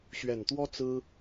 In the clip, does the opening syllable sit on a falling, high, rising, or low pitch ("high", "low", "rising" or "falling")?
low